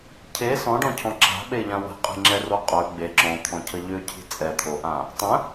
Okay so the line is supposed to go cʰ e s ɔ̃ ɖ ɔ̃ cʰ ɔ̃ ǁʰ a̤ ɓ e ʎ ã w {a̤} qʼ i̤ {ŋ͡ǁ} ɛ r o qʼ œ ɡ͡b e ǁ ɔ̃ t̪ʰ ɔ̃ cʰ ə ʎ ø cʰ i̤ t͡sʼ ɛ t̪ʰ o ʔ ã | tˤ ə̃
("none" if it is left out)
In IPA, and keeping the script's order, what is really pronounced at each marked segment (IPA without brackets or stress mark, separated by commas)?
ə̤, ŋ͡ǁ